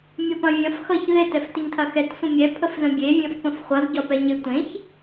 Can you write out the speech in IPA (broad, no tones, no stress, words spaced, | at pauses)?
mʲɐpɐ̃vʲɐ̃f xʌç ðɪ tɛftɪɲtʰɐxɛt sʷə̃mʲɛ pʰəfzə̃bʲe vʲɐ̃fpə̃fχʷʌz ɟɒpɛɲɪ tʷẽç